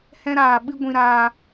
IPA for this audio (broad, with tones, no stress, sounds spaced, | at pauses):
h ɛ̃˧ ɾ aː˨ ɓ ɨ˧ ɡʷ ĩ˧ ɾ aː˧